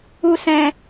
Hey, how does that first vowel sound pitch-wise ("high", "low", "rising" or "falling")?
low